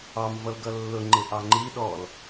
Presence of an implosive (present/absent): present